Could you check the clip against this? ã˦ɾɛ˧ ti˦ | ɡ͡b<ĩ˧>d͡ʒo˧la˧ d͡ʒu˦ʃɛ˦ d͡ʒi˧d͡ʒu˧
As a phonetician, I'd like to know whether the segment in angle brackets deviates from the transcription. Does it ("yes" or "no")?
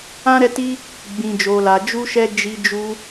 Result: no